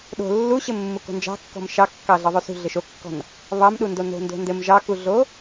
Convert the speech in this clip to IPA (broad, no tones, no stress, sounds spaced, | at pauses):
ɗ o̤ lː u ɕ ɘ mː u k o̤ n d͡ʒ ɑ̤ kː ɔ̤ m ʃ ɑ kː ɑ ɮ ɤ ðˤ o s ṳ ɮ ɘ ʃ o kː ɔ̤ n | β ɑ m ɗ u n d o n o̤ n d o̤ n d ɘ m ʒ ɑ k u ɮ o